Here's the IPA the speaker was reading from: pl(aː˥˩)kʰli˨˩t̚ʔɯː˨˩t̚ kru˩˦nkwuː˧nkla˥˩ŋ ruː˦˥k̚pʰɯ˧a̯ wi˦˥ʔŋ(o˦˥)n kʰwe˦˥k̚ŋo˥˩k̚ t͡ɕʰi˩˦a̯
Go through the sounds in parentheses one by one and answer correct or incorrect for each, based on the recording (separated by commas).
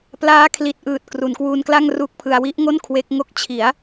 incorrect, incorrect